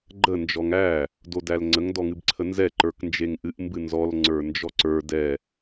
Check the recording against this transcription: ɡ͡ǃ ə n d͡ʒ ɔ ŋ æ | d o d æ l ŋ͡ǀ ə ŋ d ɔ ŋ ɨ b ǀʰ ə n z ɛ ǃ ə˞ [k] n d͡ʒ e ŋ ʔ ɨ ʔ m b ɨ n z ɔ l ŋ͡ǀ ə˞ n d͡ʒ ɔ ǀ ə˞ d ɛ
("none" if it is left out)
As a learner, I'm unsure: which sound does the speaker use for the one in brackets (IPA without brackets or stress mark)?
k